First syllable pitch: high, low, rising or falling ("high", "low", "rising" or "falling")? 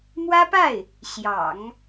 high